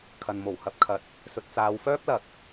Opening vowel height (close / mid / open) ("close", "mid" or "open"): open